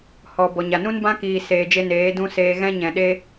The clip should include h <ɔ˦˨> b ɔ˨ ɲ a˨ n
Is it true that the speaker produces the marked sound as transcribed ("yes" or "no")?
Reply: no